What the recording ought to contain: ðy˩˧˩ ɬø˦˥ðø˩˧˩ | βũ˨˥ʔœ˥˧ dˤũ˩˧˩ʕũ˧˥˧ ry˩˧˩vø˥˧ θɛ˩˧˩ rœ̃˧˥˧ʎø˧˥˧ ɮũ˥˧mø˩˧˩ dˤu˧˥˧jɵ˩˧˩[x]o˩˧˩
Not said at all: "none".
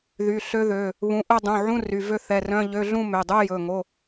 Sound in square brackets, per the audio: ŋ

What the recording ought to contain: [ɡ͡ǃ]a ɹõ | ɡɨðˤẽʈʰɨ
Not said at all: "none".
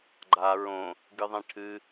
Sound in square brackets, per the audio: ɡ͡ǃ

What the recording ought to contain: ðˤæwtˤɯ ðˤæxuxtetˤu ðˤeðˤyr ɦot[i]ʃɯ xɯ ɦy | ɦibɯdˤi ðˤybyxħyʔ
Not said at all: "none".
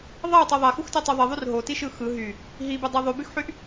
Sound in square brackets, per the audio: i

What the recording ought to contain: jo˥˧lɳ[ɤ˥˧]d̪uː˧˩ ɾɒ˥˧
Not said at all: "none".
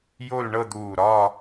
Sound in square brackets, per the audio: ɤ˥˧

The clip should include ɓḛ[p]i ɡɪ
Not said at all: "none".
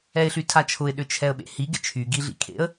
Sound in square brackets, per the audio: h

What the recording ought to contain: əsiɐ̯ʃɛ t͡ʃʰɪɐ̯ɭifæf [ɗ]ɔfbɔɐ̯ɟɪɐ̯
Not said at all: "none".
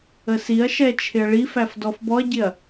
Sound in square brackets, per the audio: d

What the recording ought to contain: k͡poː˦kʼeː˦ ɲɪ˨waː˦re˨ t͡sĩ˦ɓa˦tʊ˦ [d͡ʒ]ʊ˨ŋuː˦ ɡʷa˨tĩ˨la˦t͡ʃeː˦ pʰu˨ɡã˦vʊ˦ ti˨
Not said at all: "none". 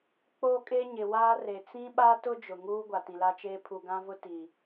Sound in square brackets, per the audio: d͡ʒ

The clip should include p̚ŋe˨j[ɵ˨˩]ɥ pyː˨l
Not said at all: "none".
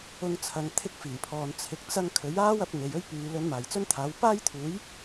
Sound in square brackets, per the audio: ɵ˥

